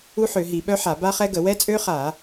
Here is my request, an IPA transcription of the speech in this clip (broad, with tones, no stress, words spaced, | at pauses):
u˦˥ħø˧˩˧ɦi˧˩˧ɓœ˦˥ ħa˧˩˧ ba˦˥χɛ˦˥ɡə˧˩˧ wɛ˦˥t͡sʼø˦˥χa˧˩˧